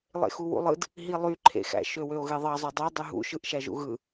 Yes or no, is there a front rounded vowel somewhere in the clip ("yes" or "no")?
yes